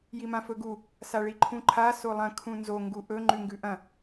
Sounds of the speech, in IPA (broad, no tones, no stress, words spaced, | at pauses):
jimãfɵɡu | saɭiǃʰũǃʰa solˠɐ̃ kʰũnzo ŋɡuʔɵ ŋ͡ǃʉŋɡʉʔɐ̃